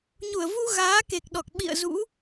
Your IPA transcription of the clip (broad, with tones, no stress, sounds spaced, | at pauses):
ɲ u˧˩ ə̯ v u˧ ɣ aː˨˦ k e˨˩ k̚ ɗ ɔ˨˩ k̚ ɓ ḭ˧˨ ə̯ z ṵ˧˥